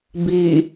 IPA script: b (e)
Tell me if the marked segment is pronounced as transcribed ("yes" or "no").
no